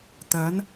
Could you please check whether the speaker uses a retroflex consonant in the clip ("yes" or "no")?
no